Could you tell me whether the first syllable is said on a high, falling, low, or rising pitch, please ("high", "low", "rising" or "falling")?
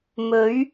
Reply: rising